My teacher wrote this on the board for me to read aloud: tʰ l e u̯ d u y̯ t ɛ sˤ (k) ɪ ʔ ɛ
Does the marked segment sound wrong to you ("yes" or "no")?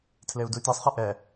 yes